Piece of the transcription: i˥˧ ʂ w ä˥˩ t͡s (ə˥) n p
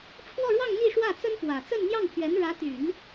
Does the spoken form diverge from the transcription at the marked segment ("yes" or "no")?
no